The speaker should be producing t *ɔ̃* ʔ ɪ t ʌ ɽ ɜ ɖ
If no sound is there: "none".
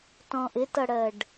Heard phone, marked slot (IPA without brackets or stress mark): ɔ̃